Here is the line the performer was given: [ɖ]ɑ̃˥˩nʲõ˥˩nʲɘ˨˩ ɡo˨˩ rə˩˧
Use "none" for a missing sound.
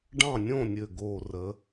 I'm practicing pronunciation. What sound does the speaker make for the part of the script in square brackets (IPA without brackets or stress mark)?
ɖ